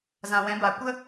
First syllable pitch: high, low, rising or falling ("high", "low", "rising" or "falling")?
low